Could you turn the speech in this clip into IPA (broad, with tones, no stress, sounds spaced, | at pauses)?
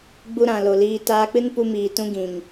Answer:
ɡ͡b u˧ ɾ ã˨ l o˨ l iː˧ t aː˧ k͡p ɨ˦ n p u˧ m iː˨ t ũ˦ ɡ ĩ˨ ŋ